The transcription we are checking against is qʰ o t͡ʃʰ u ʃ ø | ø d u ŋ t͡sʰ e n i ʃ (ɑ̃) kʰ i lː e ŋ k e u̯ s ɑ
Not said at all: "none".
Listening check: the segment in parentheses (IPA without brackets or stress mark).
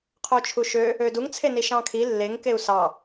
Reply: ɑ̃